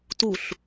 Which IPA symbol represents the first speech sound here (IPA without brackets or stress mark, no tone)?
t